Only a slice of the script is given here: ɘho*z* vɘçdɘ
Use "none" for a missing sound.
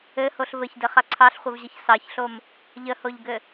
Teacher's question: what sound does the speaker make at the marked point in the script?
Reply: ɬ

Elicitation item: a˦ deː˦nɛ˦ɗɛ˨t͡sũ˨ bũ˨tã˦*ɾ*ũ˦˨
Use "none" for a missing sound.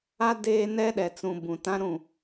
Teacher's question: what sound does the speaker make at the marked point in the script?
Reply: ɾ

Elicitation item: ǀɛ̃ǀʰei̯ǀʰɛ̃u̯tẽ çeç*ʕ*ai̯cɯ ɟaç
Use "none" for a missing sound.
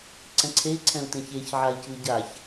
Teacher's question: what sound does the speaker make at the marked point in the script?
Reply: ʕ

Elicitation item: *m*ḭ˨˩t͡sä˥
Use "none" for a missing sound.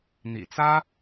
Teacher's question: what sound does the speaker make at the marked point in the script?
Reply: n̪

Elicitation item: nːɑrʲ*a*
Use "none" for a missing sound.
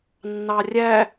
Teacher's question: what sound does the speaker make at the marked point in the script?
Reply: æ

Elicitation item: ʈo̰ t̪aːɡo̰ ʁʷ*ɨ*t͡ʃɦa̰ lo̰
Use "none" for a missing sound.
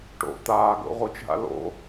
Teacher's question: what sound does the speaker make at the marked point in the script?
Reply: i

